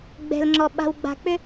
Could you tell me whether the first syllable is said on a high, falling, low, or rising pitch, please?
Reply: low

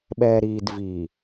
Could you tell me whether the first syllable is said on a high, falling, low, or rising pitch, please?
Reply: low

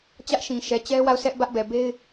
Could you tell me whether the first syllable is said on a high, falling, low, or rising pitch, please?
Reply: high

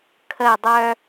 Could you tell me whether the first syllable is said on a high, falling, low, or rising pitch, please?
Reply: falling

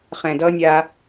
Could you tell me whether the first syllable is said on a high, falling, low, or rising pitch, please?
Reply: low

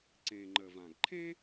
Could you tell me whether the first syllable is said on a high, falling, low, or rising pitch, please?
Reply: low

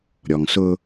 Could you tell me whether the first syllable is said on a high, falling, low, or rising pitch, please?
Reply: low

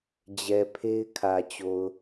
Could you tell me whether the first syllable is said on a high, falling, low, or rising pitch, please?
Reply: low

